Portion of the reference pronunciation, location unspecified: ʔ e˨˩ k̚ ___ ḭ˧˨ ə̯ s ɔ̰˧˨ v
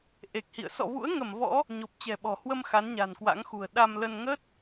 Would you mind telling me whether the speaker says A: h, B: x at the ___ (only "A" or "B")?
A